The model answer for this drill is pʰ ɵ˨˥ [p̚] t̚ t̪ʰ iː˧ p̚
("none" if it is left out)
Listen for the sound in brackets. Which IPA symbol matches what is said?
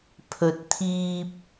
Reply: none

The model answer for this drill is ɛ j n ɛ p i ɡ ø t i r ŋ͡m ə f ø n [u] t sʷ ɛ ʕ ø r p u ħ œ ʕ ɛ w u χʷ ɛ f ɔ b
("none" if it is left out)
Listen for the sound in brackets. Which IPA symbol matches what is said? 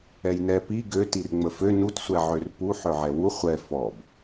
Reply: u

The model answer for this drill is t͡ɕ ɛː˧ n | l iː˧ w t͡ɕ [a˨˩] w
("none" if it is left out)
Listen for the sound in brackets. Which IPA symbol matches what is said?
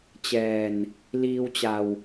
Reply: a˧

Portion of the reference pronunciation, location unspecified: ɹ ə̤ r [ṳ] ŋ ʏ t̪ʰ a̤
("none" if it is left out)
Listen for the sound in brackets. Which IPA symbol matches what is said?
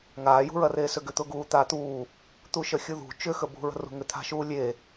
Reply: ṳ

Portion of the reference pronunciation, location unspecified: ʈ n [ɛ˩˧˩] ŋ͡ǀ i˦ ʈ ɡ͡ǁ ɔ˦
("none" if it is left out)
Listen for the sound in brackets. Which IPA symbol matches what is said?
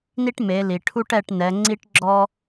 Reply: ɛ˩˧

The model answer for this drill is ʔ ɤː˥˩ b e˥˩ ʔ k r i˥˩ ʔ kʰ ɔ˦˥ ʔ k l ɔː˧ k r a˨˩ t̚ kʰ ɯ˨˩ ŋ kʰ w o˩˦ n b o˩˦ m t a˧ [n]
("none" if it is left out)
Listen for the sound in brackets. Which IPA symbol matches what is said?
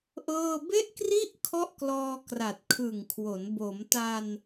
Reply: n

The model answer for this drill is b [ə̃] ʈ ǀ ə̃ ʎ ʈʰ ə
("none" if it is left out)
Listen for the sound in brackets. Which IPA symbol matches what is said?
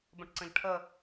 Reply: ə̃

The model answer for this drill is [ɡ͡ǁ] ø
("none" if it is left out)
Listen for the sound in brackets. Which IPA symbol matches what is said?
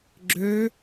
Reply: ɡ͡ǁ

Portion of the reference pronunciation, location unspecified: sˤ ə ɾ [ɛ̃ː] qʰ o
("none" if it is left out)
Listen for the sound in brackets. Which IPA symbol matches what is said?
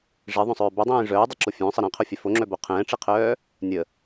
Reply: ɛ̃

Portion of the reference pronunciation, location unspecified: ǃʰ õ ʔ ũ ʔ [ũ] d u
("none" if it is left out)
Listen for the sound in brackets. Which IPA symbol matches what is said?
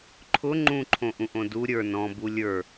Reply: õ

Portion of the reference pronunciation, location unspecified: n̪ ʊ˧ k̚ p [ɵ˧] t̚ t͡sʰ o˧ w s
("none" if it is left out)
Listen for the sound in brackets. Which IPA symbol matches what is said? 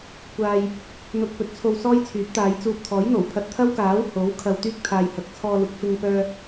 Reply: ɵ˨˥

